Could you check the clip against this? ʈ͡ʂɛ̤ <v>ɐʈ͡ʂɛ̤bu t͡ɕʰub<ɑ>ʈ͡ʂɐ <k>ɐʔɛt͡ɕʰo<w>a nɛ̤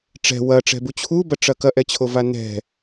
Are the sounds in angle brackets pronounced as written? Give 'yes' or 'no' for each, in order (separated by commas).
no, no, yes, no